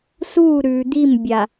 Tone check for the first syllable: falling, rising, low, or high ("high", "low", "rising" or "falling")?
falling